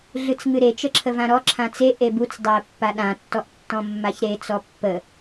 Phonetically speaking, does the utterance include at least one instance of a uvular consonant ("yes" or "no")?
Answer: no